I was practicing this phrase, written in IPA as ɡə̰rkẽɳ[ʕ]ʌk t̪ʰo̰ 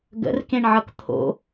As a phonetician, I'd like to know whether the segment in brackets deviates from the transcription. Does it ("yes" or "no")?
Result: no